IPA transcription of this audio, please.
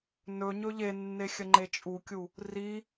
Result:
n ɵ ɲ ɵ ʎ e nː e xʲ ə ŋ͡ǃ e t͡ʃʼ u kʲ u | r i

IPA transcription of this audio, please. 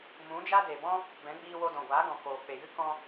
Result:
m ũ˨˦ d͡ʒ a˦ d e˨ b ɔ̃˦ | b ɛ̃˨˦ ɡ͡b iː˧ w o˧ d ɔ̃˨ ɡʷ aː˨˦ ɡ ɔ̃˨ k oː˨ k͡p e˨ j ɨ˦ k ɔ̃˧

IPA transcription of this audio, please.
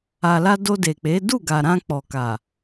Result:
a˨ l a˧ d o˧ d e˨ k͡p e˨˦ d u˦˨ ɡ a˨ ɾ ã˧ k͡p ɔ˨ k a˨

